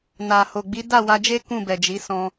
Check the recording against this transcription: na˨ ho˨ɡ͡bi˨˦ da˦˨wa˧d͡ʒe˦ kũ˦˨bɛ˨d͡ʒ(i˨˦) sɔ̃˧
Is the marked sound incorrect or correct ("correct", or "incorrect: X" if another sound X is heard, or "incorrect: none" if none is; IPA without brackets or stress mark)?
correct